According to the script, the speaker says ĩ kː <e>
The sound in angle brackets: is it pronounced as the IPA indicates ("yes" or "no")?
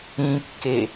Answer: yes